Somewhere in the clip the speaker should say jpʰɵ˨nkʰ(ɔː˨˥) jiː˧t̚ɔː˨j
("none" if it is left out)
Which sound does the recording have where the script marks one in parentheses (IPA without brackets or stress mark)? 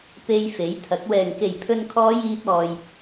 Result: ɔː˨˧